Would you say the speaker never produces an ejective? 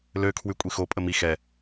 no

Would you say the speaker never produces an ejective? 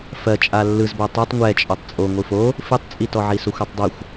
no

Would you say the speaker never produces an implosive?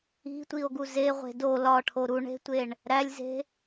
yes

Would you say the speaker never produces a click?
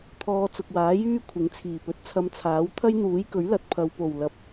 yes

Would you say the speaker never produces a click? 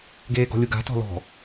yes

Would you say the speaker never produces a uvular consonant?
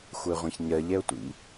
no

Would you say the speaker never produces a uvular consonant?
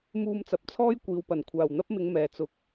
yes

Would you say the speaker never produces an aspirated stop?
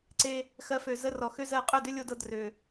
yes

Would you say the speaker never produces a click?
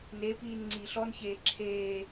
no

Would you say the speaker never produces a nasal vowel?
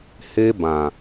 no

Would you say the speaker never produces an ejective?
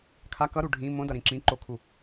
yes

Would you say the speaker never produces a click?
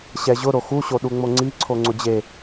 no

